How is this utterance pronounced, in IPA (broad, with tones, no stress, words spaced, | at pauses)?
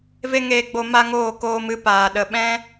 ve˦ŋeː˧ɡ͡bo˧ ma˦ŋoː˦˨koː˧mɨ˧ paː˨ ɗə˨ɓɛ̃˦